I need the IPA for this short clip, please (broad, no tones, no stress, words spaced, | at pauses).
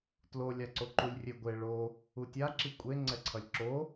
tlolʲaǀoǃulʲ rʲeɡʷe ɭo | utʲa ǁikʷʼe ŋ͡ǀɛǀʰʌlʲǁo